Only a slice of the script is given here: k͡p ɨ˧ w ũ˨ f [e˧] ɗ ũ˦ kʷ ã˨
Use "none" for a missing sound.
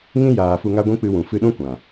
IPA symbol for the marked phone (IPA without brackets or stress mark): ɨ˧